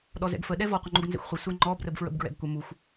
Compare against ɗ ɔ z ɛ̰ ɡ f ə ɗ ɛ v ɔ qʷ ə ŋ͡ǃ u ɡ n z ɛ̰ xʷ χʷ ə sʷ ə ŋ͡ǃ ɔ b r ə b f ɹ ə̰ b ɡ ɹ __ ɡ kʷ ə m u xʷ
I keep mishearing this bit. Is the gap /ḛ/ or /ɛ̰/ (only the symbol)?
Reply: ɛ̰